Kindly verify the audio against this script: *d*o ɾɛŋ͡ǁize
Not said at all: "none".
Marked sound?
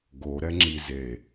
ɡ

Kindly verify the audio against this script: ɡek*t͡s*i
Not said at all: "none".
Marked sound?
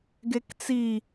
t͡s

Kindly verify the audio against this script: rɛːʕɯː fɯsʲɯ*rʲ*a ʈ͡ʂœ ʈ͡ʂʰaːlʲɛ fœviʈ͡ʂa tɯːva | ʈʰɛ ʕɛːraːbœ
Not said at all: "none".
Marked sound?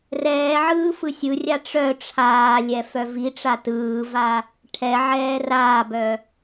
rʲ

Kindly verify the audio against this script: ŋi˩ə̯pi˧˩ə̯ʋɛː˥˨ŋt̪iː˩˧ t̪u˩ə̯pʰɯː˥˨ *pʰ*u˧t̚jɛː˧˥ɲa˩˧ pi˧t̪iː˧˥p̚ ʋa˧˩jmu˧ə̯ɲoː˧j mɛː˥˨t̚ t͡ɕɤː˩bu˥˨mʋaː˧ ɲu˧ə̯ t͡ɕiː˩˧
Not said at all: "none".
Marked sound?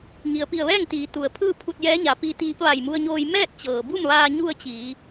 pʰ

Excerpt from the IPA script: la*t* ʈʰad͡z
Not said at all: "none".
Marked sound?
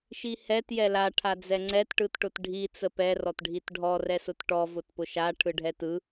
none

